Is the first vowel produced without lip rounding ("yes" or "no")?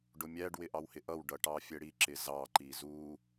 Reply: no